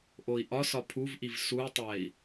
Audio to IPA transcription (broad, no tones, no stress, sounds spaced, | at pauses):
ʔ o i̯ ʔ ɒ s ɒ pʰ u v ʔ i v s u i̯ tˤ æ i̯